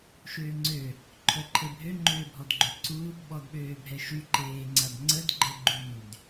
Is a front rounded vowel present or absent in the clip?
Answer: present